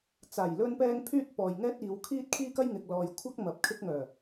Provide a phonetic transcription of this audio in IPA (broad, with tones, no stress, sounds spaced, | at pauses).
t͡s aː˨˩ j l ɵ˧ n p ɛː˧ ŋ pʰ yː˥ t̚ p ɔː˨ j ŋ ɛː˥ t̚ iː˨˧ w kʰ iː˥ t̚ kʰ iː˥ k ɐ˥ j ŋ ɪ˨ k̚ l ɔː˨ j kʷʰ ɐ˥ k̚ m ɐ˨ p̚ kʰ ɪ˧ k̚ ŋ œː˨˩